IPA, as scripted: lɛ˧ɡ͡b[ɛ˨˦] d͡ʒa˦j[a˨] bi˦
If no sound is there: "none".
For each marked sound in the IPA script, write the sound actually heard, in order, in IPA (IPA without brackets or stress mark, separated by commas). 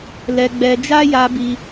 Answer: ɛ˧, a˧